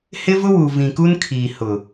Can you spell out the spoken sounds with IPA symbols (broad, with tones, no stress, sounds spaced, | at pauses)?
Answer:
h ɪ˦ v ʊ˦ w u˨ v ĩ˨ k u˦ n kʰ iː˨ h ʊ˨